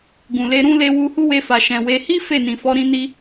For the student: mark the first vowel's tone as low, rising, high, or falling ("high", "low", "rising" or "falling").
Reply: low